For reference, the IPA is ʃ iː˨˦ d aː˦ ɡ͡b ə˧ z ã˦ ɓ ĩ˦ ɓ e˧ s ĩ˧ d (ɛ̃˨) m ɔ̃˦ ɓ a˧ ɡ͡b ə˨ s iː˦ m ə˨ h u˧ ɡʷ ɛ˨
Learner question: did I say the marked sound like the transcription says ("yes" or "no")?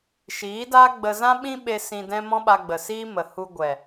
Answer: no